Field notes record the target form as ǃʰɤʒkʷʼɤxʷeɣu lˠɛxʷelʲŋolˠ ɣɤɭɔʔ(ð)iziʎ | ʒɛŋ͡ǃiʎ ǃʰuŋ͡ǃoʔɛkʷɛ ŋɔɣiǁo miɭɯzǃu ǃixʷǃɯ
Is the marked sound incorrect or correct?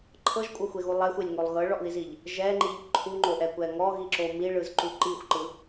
correct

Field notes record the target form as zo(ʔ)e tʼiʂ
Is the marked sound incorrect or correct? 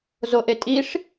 correct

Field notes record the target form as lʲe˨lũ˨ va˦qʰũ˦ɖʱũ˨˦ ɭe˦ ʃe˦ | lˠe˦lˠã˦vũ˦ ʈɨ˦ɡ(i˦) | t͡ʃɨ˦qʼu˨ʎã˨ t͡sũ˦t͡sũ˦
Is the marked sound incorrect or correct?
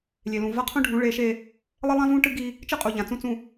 correct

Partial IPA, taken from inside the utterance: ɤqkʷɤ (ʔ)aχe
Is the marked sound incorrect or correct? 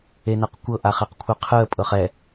correct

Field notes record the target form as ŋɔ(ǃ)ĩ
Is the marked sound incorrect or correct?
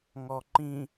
correct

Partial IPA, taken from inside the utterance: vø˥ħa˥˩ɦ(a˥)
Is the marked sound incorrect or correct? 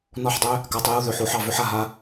correct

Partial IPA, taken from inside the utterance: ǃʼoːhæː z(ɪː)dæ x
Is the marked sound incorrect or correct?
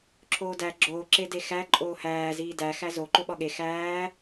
incorrect: iː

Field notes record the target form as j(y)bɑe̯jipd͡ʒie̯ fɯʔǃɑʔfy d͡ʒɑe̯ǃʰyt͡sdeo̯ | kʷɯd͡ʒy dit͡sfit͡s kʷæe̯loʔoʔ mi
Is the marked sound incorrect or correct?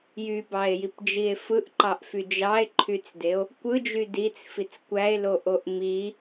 correct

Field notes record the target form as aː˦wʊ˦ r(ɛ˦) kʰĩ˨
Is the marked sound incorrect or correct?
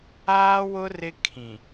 incorrect: ɪ˦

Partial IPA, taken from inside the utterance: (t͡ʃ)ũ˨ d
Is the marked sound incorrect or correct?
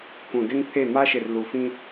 incorrect: k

